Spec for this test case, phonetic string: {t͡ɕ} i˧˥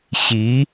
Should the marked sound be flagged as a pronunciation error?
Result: yes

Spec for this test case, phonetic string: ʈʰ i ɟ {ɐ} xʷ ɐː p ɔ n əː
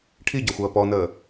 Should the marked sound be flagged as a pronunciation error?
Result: no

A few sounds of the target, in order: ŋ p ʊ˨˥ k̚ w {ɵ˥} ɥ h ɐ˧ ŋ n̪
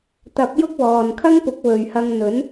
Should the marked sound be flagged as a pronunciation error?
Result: yes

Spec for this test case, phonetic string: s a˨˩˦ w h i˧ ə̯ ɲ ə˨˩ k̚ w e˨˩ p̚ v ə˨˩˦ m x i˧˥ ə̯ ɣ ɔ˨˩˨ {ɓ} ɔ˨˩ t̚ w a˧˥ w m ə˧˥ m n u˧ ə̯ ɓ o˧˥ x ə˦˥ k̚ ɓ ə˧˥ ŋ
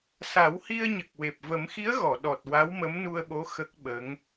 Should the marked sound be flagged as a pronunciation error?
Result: yes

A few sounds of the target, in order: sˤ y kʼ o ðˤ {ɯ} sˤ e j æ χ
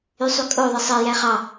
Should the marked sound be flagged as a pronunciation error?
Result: no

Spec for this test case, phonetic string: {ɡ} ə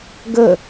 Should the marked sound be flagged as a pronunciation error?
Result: no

